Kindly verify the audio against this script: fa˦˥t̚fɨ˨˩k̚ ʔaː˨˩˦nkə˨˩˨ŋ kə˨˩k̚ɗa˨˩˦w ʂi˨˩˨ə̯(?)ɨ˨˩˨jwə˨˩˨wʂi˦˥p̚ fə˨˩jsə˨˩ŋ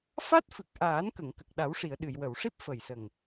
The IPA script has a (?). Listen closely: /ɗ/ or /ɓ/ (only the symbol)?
ɗ